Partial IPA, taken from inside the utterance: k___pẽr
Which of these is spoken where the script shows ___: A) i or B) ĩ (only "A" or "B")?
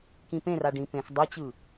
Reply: B